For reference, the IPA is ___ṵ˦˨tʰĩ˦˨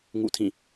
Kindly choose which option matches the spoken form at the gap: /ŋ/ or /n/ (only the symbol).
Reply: ŋ